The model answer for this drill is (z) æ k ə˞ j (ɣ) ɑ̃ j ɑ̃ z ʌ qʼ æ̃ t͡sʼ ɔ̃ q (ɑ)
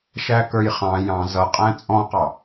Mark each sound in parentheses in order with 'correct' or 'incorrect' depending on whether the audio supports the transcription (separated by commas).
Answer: incorrect, incorrect, correct